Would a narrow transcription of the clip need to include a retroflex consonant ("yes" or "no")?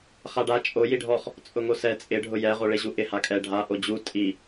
yes